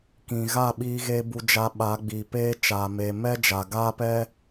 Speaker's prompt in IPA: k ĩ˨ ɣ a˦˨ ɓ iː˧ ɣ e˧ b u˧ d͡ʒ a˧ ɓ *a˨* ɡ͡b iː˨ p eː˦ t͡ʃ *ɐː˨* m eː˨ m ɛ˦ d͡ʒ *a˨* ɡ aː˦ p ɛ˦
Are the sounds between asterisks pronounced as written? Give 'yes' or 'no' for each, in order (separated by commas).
no, no, yes